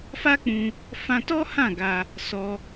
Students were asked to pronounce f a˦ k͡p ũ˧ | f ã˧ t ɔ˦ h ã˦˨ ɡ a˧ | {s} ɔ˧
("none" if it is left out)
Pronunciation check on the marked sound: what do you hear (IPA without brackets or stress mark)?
s